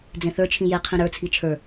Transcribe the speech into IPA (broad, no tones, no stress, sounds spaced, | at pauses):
d͡z ẽ θ ə˞ t͡ʃʰ ĩ j e qʰ ĩ ɾ ə˞ t͡sʰ i t͡ʃʰ ə˞